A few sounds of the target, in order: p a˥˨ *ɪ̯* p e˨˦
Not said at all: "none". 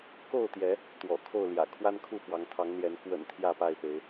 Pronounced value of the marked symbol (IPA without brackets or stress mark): ɪ̯